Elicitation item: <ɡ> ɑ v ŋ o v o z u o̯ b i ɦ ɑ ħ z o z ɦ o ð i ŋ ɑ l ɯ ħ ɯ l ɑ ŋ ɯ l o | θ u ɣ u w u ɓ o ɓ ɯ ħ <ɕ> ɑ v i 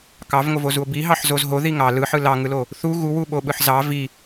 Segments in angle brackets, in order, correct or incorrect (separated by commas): incorrect, incorrect